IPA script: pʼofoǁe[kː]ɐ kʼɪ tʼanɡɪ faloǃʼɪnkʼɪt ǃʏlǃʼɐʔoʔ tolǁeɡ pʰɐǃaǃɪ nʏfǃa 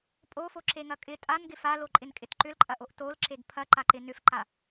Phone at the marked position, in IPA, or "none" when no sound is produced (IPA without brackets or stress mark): ŋ